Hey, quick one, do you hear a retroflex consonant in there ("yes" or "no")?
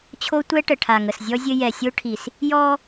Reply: yes